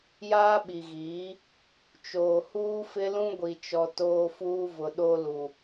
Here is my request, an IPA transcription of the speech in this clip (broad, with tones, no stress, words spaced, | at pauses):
jaː˦ɓi˨ɣiː˨˦ | t͡ʃoː˨huː˦fɪ˦lũ˦ ɡʷi˨t͡ʃɔ˨ toː˦fuː˦vʊ˨ ɗo˦lu˨